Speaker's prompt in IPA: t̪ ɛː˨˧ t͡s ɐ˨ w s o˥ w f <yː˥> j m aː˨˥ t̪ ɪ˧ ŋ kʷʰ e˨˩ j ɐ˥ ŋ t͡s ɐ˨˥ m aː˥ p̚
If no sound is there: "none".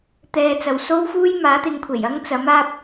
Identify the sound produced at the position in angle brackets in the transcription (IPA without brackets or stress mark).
uː˥